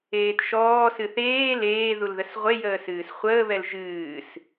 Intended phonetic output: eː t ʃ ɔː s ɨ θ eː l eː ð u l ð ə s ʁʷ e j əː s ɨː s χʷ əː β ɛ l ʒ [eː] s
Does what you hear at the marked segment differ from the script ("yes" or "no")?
yes